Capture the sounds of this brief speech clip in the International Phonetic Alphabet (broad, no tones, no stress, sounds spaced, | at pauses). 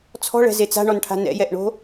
t͡sʰ ɔ̤ ɭ ɛ̤ z e t͡s a̤ ɳ ɔ n ʈʰ a̤ n ɛ̰ j ɛ ʔ ɳ o̤